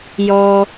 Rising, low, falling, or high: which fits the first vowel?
high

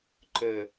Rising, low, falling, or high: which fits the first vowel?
low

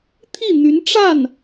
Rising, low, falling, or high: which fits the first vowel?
falling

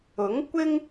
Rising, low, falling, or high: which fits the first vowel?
rising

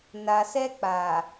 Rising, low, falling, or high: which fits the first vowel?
low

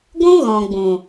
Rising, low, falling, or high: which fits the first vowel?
high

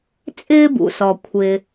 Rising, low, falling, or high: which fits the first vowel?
high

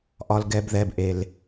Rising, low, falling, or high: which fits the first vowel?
low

